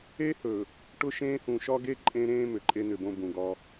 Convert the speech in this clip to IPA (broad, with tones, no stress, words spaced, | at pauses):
e˦hɵ˨ | ʈʊ˦ʃẽː˦hũ˨ ʃɒ˦ɡe˦ ǃʼẽ˦ɾẽː˦ mʏ˨ǃʼe˦nʏ˨bõ˦ bũ˨ɡɒ˦